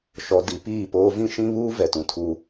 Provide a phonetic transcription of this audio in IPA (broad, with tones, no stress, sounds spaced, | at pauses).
ʃ ɔ˨ d i˨ p iː˦˨ p oː˦ v ĩ˦ ʃ ĩ˦ β uː˦ v ɛ˨ t ũ˨ tʰ u˦